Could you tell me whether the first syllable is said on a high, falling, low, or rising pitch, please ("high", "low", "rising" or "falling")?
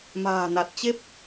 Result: low